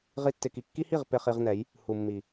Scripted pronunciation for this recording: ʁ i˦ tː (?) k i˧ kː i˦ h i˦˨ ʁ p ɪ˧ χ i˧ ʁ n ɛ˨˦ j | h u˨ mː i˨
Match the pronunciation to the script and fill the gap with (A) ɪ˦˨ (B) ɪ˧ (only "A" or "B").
B